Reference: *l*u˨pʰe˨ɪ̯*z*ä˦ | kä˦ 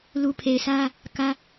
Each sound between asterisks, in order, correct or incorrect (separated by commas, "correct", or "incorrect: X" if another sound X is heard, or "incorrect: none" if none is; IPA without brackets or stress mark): correct, incorrect: s